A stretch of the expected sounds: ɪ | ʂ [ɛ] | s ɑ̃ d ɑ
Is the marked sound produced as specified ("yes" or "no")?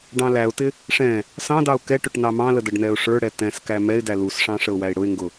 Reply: no